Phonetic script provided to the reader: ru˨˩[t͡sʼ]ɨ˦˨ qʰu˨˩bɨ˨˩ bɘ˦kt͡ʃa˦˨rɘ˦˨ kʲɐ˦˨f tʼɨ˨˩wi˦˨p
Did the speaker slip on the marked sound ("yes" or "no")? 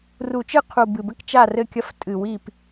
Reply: yes